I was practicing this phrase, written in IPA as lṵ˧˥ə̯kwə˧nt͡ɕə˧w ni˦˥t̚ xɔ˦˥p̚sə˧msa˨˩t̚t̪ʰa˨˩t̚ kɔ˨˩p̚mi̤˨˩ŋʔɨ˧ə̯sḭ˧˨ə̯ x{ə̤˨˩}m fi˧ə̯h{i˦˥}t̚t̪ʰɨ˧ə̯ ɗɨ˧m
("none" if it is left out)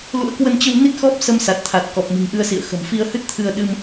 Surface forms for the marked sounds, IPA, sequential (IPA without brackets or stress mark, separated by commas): ə̤˨˩, ɨ˦˥